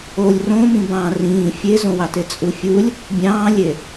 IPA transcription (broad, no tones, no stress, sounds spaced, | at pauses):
o lʲ r õ m ĩ b ɑ̃ː r ĩː fʲ e z õ w ɑ t e t͡sʼ u fʲ u lʲ | bʲ ɑ̃ː lʲ e